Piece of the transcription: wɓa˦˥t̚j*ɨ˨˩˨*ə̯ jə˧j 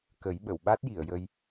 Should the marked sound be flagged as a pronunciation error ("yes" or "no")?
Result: yes